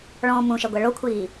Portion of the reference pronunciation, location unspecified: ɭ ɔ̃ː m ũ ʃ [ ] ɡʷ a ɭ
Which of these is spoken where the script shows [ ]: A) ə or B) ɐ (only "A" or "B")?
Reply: B